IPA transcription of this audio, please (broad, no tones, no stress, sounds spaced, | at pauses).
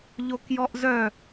ʎ o k j ɔ ʔ z œ